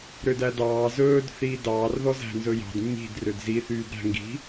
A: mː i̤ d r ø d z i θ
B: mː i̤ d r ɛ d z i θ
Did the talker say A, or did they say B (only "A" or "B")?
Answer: A